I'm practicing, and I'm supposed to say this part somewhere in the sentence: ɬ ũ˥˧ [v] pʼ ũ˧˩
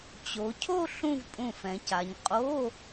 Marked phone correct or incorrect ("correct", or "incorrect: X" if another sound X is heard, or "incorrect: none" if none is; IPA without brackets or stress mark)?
correct